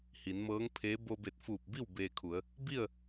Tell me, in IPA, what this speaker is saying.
h i˩˧ n m ɤː˧˥ ŋ pʰ eː˧˥ b o˧ b e˧˩ t̚ f uː˧˩ p̚ b i˥˨ w b eː˧ kʰ u˩˧ ə̯ | b i˥˨ ə̯

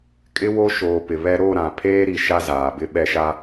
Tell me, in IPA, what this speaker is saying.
kʼ ɪ˦ w o˦ ʃ oː˨ p ɪ˨ β ɛ˦ ɾ o˦˨ ɾ ã˨ pʰ eː˦ ɾ i˨ ʃ a˦ z aː˨ b ɪ˦ ɓ ɛ˦ ʃ a˦

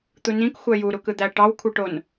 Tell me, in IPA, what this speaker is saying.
t̪ u n ĩ k xʷ æ j u ɾ u k ɯ d̪ æ ʈ ɑ w kʷʰ ɯ ʈ o n

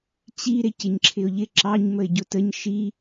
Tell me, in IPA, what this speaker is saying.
t͡ɕ i ɾ ɪ c ɪ ɲ ǁʰ ɪ ʊ̯ ʎ ɪ ǁ ɑ ɲ m ə ɪ̯ ɟ ʊ t ə ɲ ʃ i

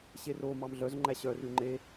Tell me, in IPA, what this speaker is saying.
ɕ e r o m ɑ m ɮ œ z ŋ͡ǃ æ ɕ œ r ʉ ŋ͡ǃ e

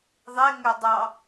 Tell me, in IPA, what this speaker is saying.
ðˤ e ŋ ø dˤ ɑ

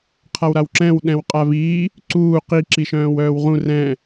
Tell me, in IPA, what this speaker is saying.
qʰ a w ɾ a w ǁ ɛ̃ w ɗ ɛ̃ w qʼ a v iː | ǀ uː q i ǁ i ʃ œ̃ː w œː w ʁ ũ r ɛ̃

